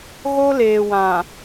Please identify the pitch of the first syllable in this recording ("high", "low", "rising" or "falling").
high